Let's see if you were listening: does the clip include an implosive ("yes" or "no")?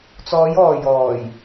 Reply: no